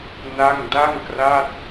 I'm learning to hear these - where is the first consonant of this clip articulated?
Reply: tongue tip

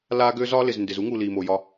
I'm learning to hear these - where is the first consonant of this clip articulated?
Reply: tongue tip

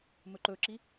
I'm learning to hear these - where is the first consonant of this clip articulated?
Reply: lips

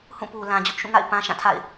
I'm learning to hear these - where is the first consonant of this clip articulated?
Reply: throat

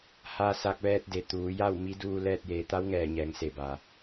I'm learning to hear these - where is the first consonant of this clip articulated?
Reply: throat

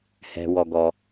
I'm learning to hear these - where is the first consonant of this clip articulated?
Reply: throat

